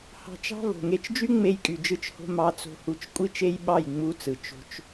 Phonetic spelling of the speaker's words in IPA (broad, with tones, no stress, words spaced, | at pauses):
hɑ̤˧t͡ʃɑ̤˦ vo̤˨ŋe˧t͡ʃd͡ʒy˦ ŋ͡me˧jkʼy˨d͡ʒɯ˧t͡ʃho̤˧ mɑ˧t͡so̤˧hu˧t͡ʃ kʷʼi˦t͡ʃe˦jɓɑ˦˨j ŋ͡mu˧ t͡sɯ˨ t͡ʃo̤˧t͡ʃ